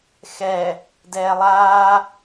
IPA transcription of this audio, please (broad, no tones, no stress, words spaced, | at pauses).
xɛ | dɛːlˠaː